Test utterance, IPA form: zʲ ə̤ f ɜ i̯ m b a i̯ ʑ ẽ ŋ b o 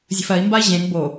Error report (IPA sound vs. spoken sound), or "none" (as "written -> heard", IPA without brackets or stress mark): none